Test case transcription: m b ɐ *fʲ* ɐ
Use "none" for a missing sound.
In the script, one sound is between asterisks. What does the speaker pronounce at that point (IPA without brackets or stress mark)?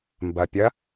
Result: pʲ